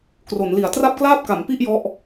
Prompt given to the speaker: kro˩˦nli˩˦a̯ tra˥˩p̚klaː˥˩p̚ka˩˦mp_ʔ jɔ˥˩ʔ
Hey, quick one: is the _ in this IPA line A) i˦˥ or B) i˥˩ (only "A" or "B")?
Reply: B